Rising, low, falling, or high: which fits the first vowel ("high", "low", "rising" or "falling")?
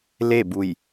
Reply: falling